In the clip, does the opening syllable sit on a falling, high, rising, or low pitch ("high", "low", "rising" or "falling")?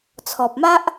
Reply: low